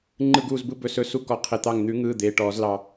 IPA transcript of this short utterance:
ŋ͡ǃ ɯ˧˩ ɡ uː˧˩ z b ɯ˧ b ɵ˧˩ s ɵ˧˥ s u˧ k ɔ˧˩ qʰ e˧˩ t̪ ɑ˧˩ ŋ n̪ ʉ˨˩˦ ŋ ɯː˩˧˩ d̪ eː˩˧˩ ʈ ɔː˨˩˦ z l ɑ˧

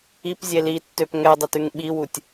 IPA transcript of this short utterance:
i p zʲ e l i tː ø p ŋ ɛ dˤ ø t ʉ ŋ ɓ i w u tʲ

